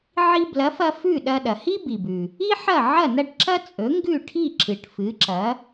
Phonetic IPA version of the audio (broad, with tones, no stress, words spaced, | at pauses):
ʕi˧blɐ˩˥fɐ˧ fʉ˥˩ɗɐ˧ ɗɐ˩hi˥bi˩bʉ˩ | i˥ħɐ˥˩ ʕɐ˥˩ nɐ˥˩ʈǁɐ˥ t͡sʼɵ˩˥ŋɡʉ˥˩ʈʰi˥˩ ǁɨ˩ʈfɨ˩˥ǁɐ˩˥